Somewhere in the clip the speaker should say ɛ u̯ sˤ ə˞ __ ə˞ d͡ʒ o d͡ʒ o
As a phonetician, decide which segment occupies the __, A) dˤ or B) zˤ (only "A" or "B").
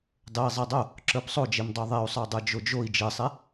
A